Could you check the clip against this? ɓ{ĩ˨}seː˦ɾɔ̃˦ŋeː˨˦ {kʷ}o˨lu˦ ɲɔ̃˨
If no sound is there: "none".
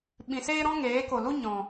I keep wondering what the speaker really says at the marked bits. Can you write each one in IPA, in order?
ĩ˨, k

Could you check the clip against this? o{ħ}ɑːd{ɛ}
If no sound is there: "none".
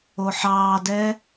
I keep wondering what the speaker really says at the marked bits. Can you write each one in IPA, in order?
ħ, ɛ

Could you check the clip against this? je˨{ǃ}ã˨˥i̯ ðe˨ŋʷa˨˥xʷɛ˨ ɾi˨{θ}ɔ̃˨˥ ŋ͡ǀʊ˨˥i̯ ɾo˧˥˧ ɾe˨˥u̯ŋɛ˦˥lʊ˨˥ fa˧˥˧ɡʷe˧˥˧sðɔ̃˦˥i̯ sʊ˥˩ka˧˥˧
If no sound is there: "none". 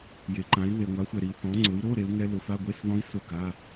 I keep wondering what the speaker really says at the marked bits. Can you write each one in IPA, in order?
ǃ, θ

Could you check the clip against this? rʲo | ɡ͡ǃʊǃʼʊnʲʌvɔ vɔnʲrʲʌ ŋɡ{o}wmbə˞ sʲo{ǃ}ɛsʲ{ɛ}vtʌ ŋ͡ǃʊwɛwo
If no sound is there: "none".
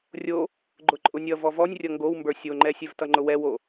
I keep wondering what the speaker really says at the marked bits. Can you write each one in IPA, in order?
o, ŋ͡ǃ, ɛ

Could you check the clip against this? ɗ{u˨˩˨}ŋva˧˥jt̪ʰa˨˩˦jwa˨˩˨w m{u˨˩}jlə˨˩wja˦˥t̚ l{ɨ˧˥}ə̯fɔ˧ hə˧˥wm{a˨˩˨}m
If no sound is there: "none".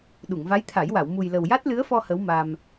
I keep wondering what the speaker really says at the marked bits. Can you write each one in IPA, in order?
u˨˩˨, u˨˩, ɨ˧˥, a˧

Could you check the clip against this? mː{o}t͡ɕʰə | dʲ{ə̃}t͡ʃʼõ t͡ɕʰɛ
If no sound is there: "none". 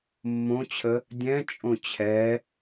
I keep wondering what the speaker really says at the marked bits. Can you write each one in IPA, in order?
õ, ɛ̃

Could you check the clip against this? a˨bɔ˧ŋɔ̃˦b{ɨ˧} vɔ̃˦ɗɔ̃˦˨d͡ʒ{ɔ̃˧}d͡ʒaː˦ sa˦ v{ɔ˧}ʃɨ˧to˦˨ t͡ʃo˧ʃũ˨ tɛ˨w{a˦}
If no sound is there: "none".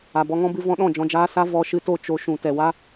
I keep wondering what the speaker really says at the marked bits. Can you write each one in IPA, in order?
ɨ˧, ɔ̃˧, ɔ˧, a˦

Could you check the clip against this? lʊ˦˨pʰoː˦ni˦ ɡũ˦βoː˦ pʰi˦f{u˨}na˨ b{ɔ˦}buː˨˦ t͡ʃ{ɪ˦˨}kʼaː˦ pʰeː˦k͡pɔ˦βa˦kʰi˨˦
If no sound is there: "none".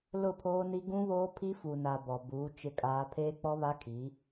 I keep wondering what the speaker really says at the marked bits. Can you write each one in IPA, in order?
u˨, ɔ˨, ɪ˦˨

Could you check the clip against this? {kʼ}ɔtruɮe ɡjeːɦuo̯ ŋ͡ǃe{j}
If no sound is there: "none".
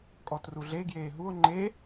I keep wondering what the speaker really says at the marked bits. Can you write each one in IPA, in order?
kʼ, none

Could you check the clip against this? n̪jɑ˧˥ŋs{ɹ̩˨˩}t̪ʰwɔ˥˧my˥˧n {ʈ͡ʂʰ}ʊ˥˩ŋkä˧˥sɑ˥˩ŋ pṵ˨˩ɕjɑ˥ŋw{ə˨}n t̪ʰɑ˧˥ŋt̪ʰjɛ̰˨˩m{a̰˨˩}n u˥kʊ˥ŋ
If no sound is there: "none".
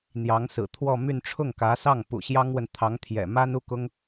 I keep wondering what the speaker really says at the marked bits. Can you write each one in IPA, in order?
ɹ̩˨˩, ʈ͡ʂʰ, ə˨, a˥

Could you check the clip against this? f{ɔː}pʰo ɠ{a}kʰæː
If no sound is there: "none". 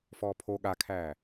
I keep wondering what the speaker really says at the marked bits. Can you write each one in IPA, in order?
ɔː, a

